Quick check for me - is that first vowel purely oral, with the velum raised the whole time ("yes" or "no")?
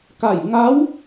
yes